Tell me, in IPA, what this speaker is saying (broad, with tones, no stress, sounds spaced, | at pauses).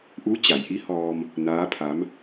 ʔ u˧˥ t͡ɕ a˩˧ j ʔ i˧˥ h ɔː˧ m | n aː˧˥ pʰ a˧˥ m